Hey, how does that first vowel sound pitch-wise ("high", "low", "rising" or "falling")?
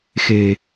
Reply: low